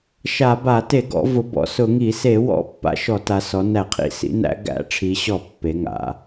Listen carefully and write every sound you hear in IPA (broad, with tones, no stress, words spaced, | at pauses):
ʃa˧˩˧ba˧˩˧ te˧˩˧ɡɔ̰˩˧vʊ˩˧ bɔ̰˩˧sʊ˧˩˧ŋi˧˩˧ se˧˩˧wɔ̰˧˩˧ pːa̰˧˩˧ʃɔ˧˩˧ta˩˧ sɔ˩˧næ˧˩˧qʰḭ˧˩˧ sḭ˩˧næ̰˩˧ ɡæ̰˧˩˧ʈ͡ʂʰi˩˧ɕɔ˧˩˧ pːe˩˧ŋa̰˩˧